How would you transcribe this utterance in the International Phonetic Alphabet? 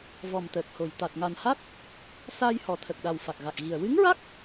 vɔ˨˩mt̪əː˨˩k̚ho˨˩j t̪a˨˩t̚ŋa˨˩nha˦˥t̚ | saː˧jhɔ˨˩t̪ʰə˨˩k̚ɗa˨˩w fa˨˩k̚ɣa˨˩k̚ɣi˨˩ə̯ wɨ˧˥ŋɹa˦˥k̚

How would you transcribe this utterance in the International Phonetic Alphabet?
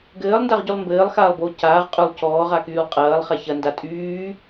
ɡɘːlˠndaʁɟylˠ mbɘːlˠxaːlˠboː caːʁ qʼʏlˠ cɔːʁakyːlˠ qʼɐːlˠχa çɐnda tʼyː

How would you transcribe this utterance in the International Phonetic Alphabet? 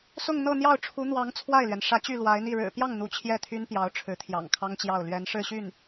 sʊ˥˧ŋ n̪ɤ˥˧n̪jɑ˥˩ʊ̯ ʈ͡ʂʰu˧˥n̪wɑ˧˥ŋ t͡sʰwa˥˩ɪ̯lɥɛ˩n ʂä˧˥ t͡ɕy˥˩lwa˧˥ɪ̯n̪i˥˩ ɻɻ̩˨˩pjɑ˥˩ŋ n̪u˧˥t͡ɕʰjɛ˥˩t̪ʰy˥npjɑ˧˥ʊ̯ ʈ͡ʂʰɻ̩˧˥t̪ʰjɑ̰˨˩ŋkʰɑ˥ŋt͡ɕjɑ˥˩ʊ̯ lɥɛ˧˥nʂɻ̩˥˧ɕy˥˩n

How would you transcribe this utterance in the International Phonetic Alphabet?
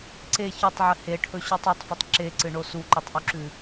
ǀe çɵtˤʕɨ heʈʰɵɕutˤ otˤfɵtˤ ǁeǀɨɳo suǃʉtˤʔuǁʉ

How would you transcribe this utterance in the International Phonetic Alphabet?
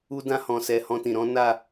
u˦dã˦ hɔ̃˧sɛ˧ hɔ̃˧tĩ˨ɾɔ̃˨˦ na˦˨

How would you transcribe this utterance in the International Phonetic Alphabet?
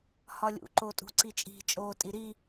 hɒlʲṵ ǃotʼṳǀit͡ʃʼi̤ t͡ʃʼoːtʼiɾi

